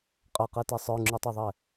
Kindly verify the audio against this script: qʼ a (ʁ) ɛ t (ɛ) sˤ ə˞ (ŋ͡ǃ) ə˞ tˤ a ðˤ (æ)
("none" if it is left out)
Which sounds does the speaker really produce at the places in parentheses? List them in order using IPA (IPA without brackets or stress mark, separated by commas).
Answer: q, ɛ, ŋ͡ǁ, ɛ